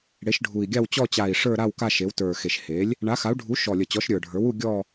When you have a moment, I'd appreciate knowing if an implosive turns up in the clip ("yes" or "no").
no